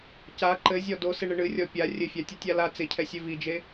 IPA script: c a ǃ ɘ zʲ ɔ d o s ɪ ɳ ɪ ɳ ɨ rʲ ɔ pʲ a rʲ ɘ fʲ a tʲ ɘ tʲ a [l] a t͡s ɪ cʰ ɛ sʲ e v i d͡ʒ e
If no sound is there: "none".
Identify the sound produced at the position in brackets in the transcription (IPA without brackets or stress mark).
l